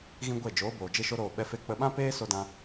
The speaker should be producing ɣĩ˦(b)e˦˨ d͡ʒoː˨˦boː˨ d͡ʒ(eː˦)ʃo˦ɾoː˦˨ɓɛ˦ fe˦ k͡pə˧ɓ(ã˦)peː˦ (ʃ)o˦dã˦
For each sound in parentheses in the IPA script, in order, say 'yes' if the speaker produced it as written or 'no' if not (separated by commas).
no, no, yes, no